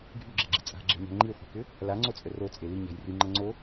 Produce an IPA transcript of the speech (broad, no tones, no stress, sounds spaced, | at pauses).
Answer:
ɡʱ y ɡ͡ǁ e ɡ͡ǁ i̤ t͡sʼ a̤ ɡ͡ǁ e̤ ɲ a̤ ŋ͡ǃ i χʷ e̤ k ʏ | l a ŋ͡ǀ o t͡sʼ ə r o t͡sʼ e l i ɲ a̤ j r y ŋ͡ǃ ɐ ŋ͡ǀ o